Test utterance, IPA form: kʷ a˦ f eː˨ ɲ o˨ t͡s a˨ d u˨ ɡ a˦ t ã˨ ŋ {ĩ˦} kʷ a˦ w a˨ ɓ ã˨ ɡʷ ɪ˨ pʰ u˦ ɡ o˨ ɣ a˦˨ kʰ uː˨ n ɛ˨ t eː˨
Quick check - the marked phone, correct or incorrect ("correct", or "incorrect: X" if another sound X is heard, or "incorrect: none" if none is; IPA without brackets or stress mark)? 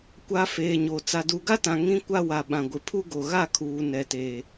correct